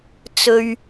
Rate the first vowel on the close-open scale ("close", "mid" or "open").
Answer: mid